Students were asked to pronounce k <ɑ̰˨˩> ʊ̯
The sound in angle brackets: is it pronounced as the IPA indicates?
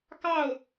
no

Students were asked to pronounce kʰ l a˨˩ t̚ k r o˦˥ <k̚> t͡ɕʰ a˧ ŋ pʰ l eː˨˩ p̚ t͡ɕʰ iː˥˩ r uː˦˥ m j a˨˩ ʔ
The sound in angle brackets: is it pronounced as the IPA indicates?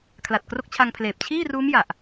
yes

